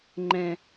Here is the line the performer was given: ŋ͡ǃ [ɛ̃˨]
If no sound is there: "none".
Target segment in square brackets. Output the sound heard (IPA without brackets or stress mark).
ɛ̃˨